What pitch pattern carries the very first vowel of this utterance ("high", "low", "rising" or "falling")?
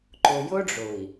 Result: low